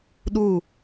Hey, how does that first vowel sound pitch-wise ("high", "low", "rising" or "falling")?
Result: falling